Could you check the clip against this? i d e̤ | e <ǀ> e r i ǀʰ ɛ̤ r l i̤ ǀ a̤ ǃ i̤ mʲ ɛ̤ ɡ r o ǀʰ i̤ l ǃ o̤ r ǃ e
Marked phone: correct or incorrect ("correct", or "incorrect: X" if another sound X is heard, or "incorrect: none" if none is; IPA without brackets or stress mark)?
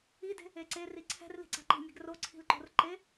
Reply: correct